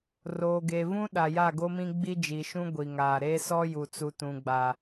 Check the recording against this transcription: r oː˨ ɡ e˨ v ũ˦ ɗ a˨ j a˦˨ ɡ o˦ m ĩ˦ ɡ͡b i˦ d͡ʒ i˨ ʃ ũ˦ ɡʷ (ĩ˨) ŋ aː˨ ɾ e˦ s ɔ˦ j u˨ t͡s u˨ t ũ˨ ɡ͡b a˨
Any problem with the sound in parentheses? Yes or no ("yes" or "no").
yes